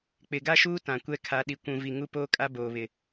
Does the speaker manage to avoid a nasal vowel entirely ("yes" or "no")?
no